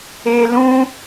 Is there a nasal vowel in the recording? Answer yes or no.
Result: yes